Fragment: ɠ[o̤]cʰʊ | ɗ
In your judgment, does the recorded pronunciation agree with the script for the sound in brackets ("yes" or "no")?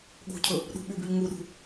yes